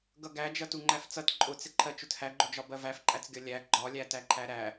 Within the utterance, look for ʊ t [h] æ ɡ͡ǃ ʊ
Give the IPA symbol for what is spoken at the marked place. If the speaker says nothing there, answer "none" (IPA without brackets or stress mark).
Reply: h